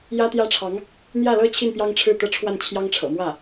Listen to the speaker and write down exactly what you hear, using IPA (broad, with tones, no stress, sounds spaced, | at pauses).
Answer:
j ä˥ t̪ j ä˥ ʈ͡ʂʰ ɑ˧˥ ŋ | n̪ j ä˥˩ l ɤ˥ t͡ɕʰ i˥˩ n p j ɑ˥ ŋ ʈ͡ʂʰ ɻ̩˥˩ t̪ ɤ˥ ʈ͡ʂʰ w a˥˩ n t͡ɕʰ j ɑ˥ ŋ ʈ͡ʂʰ ɤ̰˨˩ m w ä˥˩